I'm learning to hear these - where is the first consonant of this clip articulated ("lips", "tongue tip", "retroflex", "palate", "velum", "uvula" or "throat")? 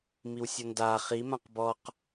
lips